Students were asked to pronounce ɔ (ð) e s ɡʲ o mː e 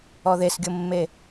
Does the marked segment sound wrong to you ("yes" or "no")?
no